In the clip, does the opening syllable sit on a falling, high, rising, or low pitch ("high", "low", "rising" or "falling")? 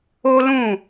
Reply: high